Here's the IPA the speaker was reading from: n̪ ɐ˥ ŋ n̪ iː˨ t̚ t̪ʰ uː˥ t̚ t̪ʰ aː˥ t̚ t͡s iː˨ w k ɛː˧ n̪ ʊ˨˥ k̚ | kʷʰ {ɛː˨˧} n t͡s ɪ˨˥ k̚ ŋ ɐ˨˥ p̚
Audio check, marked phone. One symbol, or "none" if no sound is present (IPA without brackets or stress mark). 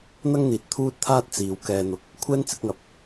ɛː˥